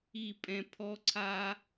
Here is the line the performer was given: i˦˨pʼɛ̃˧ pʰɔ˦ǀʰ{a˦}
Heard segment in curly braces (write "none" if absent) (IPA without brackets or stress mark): a˦